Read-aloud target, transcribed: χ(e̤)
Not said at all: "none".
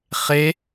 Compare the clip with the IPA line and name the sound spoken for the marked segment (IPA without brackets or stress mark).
e